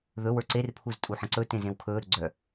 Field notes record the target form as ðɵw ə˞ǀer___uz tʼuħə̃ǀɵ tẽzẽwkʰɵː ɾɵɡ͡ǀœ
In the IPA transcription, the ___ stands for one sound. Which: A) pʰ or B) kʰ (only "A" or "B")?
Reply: A